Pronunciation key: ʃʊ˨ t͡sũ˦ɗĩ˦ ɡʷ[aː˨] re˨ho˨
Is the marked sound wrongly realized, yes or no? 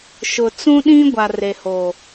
yes